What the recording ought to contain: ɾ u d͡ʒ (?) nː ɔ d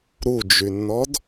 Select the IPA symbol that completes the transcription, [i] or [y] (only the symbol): y